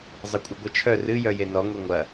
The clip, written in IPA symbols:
zˤ ɐ kʷʼ ɨ ɡʷ ɤ t͡ʃʰ œ r ɨ j œ j e n ɔ ŋʷ e ŋʷ ɐ

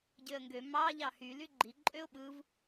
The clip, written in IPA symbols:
ɟ ø ə̯ ŋ ɡ ø m ɑ ʎ ɑ h y l y ɡ͡ǃ i ǃʼ ø ʊ̯ ɓ ɯ v

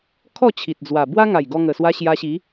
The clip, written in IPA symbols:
kʰ ɔ˥˧ t͡ɕʰ i˨ t̚ d͡z w a˨˩ b w a˦ ŋ a˨˩ j ɡ ɔ˧ ŋ ə˨˩ s w a˧ ɕ j a˧ ɕ i˨˦

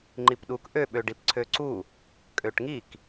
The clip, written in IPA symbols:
ŋ͡ǃ i p ɗ u k ʔ ø ɓ ø ɖ i p ǀʰ ø ǀ u | kʼ ø ʈ ŋ i k

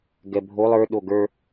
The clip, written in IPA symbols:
ɡ ɛ bʱ o lˠ ə˞ ɗ o ɡ ə˞

